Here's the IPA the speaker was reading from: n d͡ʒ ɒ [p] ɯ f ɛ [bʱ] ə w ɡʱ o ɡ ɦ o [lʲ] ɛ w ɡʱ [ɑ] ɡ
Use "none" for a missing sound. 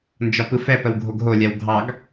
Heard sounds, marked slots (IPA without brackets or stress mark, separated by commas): p, p, lʲ, ɑ